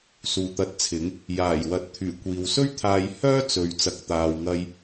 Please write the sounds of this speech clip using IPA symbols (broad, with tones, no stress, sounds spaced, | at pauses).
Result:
s uː˨ t̪ ɐ˧ t̚ t͡sʰ ɪ˨˥ ŋ | j aː˨˩ j w ɐ˨˥ t̚ t̪ʰ yː˨˩ kʷ iː˨ w s ɵ˥ ɥ t̪ʰ aː˧ j h œː˥ t͡s ɵ˨ ɥ t͡s ɐ˨ k̚ t̪ aː˨ w ŋ ɐ˨ j